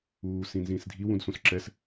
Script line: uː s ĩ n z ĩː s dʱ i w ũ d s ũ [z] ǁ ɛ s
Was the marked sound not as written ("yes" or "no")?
yes